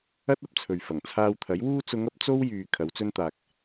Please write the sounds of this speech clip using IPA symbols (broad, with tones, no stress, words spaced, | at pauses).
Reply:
ɐ˥t̚ ɐ˧p̚t͡sʰɵ˨ɥ fɐ˨˩ŋt͡sʰaː˧wt̪ʰɐ˨˥j wuː˧t͡sʊ˨˧ŋɐ˨˥p̚ t͡so˥wjyː˨ kʰɐ˨˥wt͡sɵ˥nt̪aː˧k̚